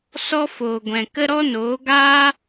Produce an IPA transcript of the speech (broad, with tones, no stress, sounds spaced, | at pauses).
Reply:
s ɔ˦ f oː˨ ɡʷ ɛ̃˨ k ə˦ ɾ ɔ˦ n oː˨˦ ɡ aː˦